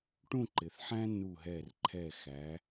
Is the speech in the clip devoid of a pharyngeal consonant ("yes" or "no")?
no